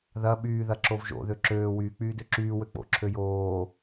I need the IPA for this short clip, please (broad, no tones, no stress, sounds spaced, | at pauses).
ð ɐ ɓ yː ð ɐ ǁ o v ʒ o̰ ð ø ǁ øː w yː k͡p yː d ø ǁ yː w ø k͡p o̰ ǁʰ ø j oː